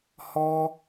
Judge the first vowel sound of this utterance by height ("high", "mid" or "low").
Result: mid